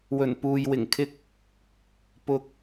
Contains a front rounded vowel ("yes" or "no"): no